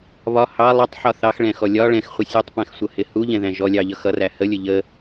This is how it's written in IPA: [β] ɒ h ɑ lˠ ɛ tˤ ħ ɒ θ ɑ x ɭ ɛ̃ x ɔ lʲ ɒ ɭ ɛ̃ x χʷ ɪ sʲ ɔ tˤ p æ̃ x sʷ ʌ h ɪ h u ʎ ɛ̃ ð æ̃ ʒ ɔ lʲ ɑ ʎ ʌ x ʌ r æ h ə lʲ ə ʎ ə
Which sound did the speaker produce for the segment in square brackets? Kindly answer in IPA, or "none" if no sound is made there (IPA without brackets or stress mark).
β